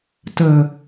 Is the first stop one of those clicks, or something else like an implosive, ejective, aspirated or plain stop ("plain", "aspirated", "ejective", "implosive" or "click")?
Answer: plain